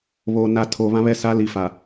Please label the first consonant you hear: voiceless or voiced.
voiced